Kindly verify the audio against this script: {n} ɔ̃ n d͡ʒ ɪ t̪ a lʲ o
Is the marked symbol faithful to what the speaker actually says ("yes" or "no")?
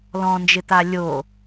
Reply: no